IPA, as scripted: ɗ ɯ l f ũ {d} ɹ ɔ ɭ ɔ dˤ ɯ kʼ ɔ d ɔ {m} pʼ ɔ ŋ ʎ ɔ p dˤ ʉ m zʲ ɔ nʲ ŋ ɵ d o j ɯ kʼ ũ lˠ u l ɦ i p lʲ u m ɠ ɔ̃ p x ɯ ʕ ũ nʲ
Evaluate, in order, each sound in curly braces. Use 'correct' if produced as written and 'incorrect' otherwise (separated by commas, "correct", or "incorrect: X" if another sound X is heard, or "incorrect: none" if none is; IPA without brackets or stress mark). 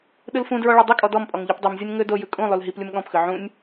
correct, correct